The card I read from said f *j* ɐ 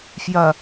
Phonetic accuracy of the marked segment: correct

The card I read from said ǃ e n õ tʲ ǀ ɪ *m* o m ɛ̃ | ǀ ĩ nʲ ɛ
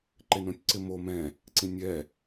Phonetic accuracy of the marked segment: correct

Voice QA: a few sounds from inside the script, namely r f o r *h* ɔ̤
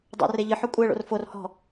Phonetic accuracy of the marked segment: correct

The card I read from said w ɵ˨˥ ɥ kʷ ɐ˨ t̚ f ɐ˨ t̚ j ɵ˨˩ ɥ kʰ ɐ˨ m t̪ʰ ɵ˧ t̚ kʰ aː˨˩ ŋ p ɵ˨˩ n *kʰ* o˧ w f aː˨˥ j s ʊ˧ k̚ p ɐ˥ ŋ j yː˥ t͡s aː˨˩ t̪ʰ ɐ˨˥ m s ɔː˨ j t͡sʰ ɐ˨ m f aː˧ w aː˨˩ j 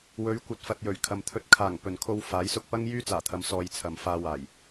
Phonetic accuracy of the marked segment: correct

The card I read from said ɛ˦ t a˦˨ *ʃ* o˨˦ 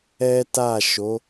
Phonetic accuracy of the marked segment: correct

